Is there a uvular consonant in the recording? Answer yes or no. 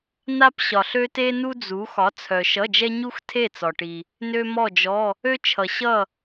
no